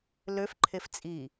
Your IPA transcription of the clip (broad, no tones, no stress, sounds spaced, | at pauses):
l ø f ǃʰ e f t͡sʼ i